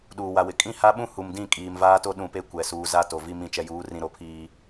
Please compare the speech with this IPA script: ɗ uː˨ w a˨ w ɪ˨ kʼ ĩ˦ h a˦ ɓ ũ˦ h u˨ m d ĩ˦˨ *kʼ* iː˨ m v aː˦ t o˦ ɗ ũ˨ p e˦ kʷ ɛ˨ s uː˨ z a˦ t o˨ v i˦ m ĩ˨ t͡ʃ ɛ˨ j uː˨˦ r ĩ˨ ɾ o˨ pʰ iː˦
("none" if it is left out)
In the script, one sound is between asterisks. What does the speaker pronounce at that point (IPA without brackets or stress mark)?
kʼ